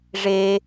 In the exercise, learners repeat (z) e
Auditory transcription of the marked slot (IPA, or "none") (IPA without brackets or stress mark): ʐ